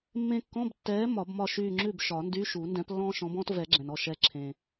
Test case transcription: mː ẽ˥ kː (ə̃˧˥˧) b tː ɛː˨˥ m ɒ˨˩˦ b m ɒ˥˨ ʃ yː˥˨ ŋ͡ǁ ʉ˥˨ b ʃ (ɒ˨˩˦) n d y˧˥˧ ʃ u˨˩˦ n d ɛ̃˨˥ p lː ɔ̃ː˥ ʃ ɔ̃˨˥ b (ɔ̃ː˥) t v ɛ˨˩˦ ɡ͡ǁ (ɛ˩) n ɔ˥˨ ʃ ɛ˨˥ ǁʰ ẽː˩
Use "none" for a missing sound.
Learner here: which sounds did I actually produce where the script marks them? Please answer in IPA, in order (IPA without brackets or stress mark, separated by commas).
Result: ɔ̃˧˥˧, ɒ˨˩˦, ɔ̃ː˥, ɛ̃˩